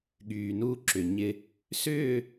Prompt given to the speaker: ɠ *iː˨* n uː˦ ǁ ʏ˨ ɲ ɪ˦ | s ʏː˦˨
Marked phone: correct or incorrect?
incorrect